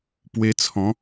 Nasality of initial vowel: oral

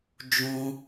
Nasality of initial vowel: nasal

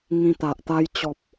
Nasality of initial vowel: nasal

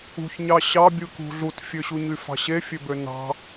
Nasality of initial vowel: oral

